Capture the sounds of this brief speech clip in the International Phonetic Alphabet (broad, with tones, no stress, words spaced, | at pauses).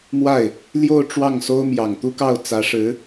mwa˥˩ɪ̯ | ljo˥˧ʊ̯ ʈ͡ʂwɑ˥˩ŋso˥ʊ̯ mjɑ˨˩ŋt̪u˥kɑ˥˩ʊ̯ t͡sä˧˥ʂɻ̩˧˥